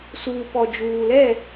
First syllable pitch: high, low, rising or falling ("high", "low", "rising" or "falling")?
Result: low